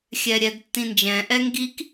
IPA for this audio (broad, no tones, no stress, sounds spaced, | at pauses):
xʲ ɛ ɾʲ ɛ d tː ĩ n d͡ʒ ɛ̃ ʔ ɛ ŋ ɡ i k